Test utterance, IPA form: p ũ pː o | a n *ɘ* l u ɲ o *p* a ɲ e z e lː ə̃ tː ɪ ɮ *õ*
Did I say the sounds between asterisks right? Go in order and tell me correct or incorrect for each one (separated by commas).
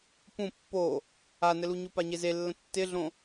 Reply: correct, correct, correct